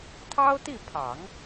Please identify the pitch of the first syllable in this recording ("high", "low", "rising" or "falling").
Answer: high